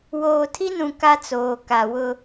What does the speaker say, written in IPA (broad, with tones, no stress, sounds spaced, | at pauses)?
w oː˨ tʰ i˦ n ũ˨ k a˦ t͡s oː˨ k a˨ w ʊ˦